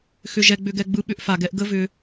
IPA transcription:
x ʏ˨ ʒ ɛ˨ ɡ͡b ʏ˨ ɡ ɛ˨ ɡ͡b ɯ˦ ɓ ʏ˦ ʔ f a˨ ɡ ɛ˦ ʔ ɡ ə˦ v ʏ˦

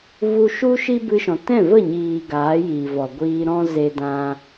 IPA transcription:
v u˧ ʃ u˦ ʃ i˦ b ɨ˧ ʃ ɔ̃˨ t ɛ̃˦˨ v ə˦˨ ɲ iː˨ ɡ aː˨˦ j iː˨ v ɔ˨ ɡʷ iː˧ ɾ ɔ̃˦ z e˧ d ã˧

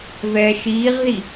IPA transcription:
v ɛː ʃ iː ʁ ð i

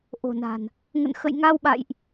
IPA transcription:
ʔ o̤˨˩ n a̤˨˩ n | ŋ ə̰˧˨ n x ə̰˧˨ j ŋ a˧ w ɓ a̰˧˨ j ʔ

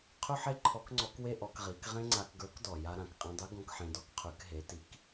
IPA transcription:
qʰ ʉ˥ ħ e˥ ǃʰ ɔ˧˥ k ŋ͡ǀ ɔ˧˥ k w e˥ ʔ ɔ˩˧ k ʁ i˩˧ k ʁ ẽ˥ ŋ͡ǀ a˧ k ɡ ə˞˧˥ k d ɔ˩ j a˧ ɾ ã˩ k qʼ ẽ˧ dˤ ʉ˧˥ ɡ ɔ̃˧ k ħ ẽ˧ d ɔ˥ k qʰ ʉ˩˧ k ɦ e˩˧ t i˩˧ k

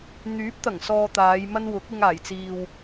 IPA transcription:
n̪ yː˨˥ p̚ t̪ ɐ˨˩ ŋ s ɔː˨ t̪ aː˨˧ j m ɐ˥ n w ʊ˨˥ k̚ ɪ˧ ŋ aː˨˩ j t͡s iː˨ w

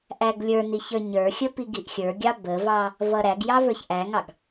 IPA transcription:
ʔ æ ɡ lʲ ə˞ n i ç ə˞ ɲ ə˞ xʲ ə p i ɡ i ʔ xʲ ə˞ ɡʲ ɑ b ə v ɑ | v ʌ ɾ æ ɡ j ɑ v ə˞ ç ʔ æ ŋ ɑ ɡ

